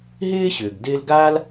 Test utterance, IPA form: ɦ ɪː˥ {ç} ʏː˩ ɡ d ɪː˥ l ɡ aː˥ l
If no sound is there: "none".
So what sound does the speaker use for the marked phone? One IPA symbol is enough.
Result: ɕ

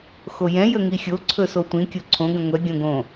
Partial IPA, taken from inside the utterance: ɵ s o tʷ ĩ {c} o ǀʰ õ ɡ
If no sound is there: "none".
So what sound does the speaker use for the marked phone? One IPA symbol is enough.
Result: kʲ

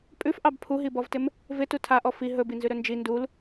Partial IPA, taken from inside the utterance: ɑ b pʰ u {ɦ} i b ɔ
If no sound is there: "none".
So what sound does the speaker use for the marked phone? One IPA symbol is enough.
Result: ɦ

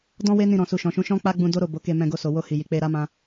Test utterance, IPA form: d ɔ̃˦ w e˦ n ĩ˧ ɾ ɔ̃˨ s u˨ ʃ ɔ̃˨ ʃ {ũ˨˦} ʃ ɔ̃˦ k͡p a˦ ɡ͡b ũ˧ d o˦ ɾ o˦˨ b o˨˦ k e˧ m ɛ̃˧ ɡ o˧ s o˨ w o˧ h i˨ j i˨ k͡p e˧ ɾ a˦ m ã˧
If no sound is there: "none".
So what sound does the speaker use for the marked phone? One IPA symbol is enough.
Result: ũ˨˦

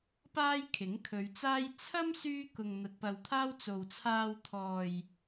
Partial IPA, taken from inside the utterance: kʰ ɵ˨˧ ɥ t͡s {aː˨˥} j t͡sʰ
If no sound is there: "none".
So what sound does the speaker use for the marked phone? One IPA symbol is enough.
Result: aː˥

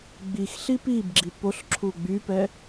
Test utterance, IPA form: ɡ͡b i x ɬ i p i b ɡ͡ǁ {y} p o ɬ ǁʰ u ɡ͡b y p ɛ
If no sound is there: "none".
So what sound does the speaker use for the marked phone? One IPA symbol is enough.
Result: i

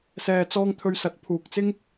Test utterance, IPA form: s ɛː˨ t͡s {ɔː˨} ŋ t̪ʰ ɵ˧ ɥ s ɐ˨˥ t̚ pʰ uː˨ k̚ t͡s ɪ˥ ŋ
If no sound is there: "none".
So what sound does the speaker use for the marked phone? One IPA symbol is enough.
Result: ɔː˧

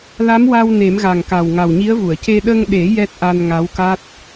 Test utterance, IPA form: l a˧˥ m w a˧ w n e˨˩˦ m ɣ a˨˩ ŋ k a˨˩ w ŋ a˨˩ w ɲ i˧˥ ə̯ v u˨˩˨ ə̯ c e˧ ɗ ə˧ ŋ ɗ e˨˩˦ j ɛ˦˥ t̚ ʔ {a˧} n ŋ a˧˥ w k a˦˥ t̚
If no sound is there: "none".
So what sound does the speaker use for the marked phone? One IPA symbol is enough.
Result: a˧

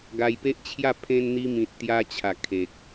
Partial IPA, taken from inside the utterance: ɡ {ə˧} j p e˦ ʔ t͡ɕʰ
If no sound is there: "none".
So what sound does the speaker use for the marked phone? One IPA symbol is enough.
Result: a˧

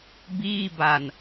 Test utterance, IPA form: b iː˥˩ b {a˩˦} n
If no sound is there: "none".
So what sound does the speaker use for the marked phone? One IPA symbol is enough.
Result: a˧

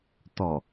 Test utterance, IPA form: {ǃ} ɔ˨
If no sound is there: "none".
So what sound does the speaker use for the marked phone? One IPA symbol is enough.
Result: t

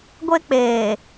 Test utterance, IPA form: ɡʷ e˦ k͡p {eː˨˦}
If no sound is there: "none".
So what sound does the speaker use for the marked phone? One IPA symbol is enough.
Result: eː˨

